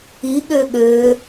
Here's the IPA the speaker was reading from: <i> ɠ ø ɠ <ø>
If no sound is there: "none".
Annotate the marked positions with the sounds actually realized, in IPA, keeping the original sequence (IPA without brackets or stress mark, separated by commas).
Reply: i, ø